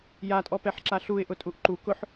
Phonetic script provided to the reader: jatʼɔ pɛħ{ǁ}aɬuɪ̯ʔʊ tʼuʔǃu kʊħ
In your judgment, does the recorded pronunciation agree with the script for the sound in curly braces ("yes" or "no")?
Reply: yes